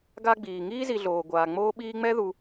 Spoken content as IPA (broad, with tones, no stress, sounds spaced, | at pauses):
ɡ a˦ ɡ͡b iː˩ ŋ iː˥ z i˨ ɮ oː˩ ɡʷ aː˩ ŋ͡m oː˦ ɓ iː˦ ŋ͡m ɛ˥ ð u˨